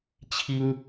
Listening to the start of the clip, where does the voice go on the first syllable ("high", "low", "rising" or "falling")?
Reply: high